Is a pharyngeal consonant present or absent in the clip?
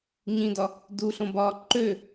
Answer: absent